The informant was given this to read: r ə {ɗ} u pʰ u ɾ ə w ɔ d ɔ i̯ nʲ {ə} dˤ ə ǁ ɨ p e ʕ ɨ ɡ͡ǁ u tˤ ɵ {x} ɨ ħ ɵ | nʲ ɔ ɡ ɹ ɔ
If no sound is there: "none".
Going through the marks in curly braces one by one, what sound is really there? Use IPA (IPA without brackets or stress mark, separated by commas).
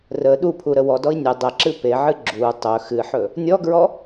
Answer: ɗ, ə, x